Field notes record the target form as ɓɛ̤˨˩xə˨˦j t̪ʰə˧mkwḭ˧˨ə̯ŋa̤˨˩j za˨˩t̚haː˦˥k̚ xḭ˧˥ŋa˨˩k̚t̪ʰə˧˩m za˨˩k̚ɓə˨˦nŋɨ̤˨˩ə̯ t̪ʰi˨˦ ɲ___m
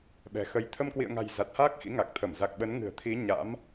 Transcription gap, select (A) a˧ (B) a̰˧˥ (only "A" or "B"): B